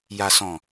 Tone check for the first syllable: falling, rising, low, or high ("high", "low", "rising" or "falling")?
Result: low